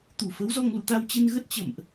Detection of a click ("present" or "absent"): absent